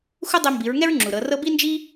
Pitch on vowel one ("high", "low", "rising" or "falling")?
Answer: high